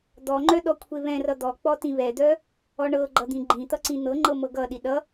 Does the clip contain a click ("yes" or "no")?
yes